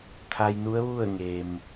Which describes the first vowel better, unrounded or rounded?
unrounded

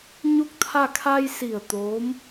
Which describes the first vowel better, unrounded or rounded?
rounded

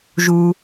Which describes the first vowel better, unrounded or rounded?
rounded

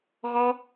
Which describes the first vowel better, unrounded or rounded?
rounded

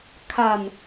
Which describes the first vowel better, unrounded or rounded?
unrounded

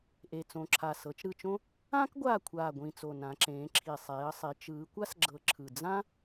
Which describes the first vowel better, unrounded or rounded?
unrounded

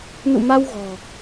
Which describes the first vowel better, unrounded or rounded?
rounded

